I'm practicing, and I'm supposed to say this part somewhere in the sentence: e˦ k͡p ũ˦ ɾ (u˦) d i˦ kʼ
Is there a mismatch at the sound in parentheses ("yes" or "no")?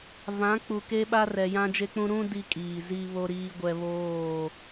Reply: yes